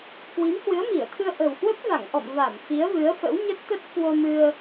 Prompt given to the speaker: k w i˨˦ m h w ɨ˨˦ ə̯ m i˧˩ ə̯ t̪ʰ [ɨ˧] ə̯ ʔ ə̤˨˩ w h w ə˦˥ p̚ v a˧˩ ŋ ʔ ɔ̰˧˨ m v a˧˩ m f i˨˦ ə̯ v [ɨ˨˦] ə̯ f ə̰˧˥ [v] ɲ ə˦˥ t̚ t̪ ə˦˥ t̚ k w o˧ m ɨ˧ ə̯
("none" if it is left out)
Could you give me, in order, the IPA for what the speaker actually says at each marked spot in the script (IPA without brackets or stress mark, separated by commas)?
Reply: ɨ˧, ɨ˨˦, w